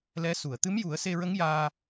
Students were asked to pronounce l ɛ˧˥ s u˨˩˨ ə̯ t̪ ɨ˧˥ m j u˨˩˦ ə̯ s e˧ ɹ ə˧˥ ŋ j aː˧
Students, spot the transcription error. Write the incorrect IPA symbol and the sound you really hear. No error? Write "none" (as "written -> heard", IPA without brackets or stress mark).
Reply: none